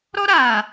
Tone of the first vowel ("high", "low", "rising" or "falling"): high